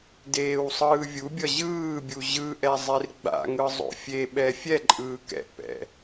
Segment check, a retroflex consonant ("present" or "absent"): absent